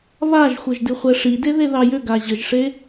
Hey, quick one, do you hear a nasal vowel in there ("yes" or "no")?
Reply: no